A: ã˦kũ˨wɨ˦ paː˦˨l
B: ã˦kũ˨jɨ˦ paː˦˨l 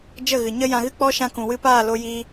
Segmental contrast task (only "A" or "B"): A